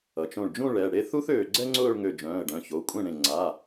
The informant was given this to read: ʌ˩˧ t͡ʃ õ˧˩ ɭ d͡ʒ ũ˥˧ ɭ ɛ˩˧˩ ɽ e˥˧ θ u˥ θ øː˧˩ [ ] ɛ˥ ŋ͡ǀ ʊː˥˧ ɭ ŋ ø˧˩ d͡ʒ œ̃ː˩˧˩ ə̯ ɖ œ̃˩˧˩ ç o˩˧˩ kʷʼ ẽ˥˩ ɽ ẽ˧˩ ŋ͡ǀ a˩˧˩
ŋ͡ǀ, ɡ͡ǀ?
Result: ɡ͡ǀ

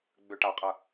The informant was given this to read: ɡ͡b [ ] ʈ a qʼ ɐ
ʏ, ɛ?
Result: ʏ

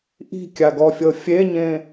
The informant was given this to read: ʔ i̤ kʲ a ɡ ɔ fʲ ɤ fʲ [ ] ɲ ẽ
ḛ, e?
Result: e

